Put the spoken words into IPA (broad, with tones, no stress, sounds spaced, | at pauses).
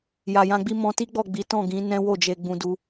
j a˨ j ã˧ ɡ͡b i˦ m ɔ̃˧ t i˦ ɡ͡b ɔ˦˨ ɡ͡b i˨˦ t ɔ̃˦˨ ɡ ĩ˨˦ n ɛ̃˦ w o˦˨ d͡ʒ e˧ ɡ͡b ũ˧ d u˧